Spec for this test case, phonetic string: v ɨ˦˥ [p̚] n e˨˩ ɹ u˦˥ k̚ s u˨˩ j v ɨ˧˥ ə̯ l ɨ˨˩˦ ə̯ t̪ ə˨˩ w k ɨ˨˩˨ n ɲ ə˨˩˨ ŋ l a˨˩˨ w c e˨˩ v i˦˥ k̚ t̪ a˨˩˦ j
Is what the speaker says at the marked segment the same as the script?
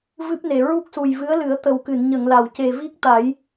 yes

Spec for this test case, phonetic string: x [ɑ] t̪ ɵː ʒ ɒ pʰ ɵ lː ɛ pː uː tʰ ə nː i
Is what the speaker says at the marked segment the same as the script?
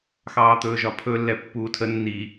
no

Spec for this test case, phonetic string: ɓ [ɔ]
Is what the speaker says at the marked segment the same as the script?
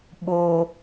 no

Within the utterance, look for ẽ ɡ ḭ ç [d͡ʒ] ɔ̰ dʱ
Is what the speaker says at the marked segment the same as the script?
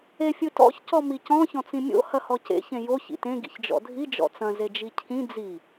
yes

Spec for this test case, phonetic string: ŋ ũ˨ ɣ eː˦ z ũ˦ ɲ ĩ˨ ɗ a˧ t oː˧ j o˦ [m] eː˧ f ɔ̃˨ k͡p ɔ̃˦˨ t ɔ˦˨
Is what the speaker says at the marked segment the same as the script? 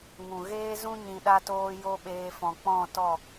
no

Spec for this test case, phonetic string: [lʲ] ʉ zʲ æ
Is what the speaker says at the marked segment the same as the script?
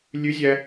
yes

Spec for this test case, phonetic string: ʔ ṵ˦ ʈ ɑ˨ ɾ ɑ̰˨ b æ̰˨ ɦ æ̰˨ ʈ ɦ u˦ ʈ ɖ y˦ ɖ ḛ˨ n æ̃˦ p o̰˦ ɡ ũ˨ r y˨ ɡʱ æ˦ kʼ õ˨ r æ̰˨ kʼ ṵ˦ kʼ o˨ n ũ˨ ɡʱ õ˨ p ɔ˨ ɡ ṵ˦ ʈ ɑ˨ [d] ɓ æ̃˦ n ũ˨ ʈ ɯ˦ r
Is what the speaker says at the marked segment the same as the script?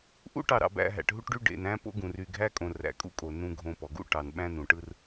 no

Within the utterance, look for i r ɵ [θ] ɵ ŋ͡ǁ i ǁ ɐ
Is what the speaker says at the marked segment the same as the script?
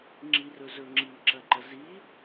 no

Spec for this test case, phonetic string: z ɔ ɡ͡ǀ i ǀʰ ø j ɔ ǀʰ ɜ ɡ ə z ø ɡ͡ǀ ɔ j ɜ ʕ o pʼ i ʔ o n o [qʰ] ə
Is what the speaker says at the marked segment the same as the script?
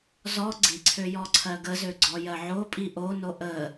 no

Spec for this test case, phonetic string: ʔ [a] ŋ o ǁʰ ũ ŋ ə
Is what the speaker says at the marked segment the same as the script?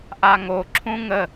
yes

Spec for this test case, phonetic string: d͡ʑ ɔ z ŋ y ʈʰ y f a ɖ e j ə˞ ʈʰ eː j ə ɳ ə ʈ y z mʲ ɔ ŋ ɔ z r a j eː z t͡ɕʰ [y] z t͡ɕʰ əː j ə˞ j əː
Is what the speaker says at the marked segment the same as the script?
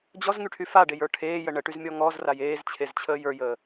no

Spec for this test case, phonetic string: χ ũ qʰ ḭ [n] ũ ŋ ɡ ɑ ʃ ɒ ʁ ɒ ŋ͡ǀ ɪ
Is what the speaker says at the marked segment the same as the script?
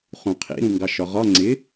no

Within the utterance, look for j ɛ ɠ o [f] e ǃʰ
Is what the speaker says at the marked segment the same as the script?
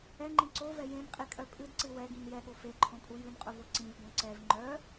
yes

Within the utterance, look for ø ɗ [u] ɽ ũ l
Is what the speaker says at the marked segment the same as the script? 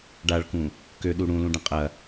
yes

